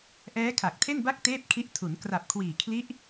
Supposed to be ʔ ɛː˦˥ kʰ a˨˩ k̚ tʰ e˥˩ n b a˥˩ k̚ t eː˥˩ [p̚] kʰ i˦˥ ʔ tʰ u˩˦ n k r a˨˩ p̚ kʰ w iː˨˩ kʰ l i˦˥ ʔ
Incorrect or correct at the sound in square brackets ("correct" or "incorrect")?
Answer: correct